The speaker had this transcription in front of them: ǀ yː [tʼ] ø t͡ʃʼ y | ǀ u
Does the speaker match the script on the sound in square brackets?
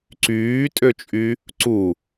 yes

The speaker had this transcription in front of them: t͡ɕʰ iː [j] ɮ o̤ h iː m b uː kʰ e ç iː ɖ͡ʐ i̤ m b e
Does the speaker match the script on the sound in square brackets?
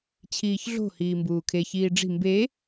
no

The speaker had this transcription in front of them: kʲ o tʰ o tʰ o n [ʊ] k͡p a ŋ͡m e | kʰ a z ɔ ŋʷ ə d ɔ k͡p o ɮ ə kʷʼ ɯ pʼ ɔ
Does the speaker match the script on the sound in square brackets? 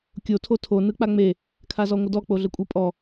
no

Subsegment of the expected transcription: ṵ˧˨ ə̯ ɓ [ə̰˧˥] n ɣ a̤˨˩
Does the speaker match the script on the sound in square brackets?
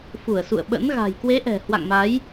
yes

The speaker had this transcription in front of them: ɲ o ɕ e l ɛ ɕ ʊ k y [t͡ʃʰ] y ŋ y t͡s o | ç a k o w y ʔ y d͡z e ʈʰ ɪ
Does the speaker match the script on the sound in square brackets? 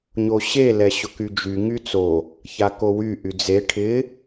no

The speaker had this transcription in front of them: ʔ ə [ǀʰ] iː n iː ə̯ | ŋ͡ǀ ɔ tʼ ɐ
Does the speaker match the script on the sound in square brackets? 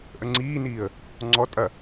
no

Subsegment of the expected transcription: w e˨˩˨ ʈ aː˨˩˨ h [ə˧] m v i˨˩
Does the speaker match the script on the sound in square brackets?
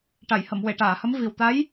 no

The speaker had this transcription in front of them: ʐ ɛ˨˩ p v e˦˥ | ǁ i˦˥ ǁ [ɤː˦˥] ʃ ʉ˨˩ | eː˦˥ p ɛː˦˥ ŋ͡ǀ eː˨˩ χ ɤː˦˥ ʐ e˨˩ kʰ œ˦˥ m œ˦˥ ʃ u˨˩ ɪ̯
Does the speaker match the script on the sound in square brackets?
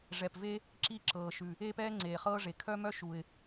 no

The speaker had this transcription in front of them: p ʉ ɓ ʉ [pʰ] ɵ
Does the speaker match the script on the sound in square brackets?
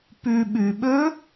no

